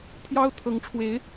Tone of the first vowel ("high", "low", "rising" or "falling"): high